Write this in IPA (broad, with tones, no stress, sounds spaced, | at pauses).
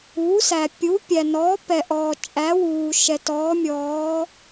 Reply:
u˩˥ s æ˩ pʲ u˩˥ pʲ æ˩ n ɔː˩˥ p ɛ˩ ʔ ɔː˩ t͡ʃʼ æ˩˥ w uː˩ ʃ ɛ˩ t ɔː˩˥ mʲ ɔː˩˥